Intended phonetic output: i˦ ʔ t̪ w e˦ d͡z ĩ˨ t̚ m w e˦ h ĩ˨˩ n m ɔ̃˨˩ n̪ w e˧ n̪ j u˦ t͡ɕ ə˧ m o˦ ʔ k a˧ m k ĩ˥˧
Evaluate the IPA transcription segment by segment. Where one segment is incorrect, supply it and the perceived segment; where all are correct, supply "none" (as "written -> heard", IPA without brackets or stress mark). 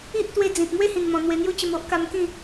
none